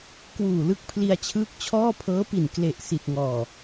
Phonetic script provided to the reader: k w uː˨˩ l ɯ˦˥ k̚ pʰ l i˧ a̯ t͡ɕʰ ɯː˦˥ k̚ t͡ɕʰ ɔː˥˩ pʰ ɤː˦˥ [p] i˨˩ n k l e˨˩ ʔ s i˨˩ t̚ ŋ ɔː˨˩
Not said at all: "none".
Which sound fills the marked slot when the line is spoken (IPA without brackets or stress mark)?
p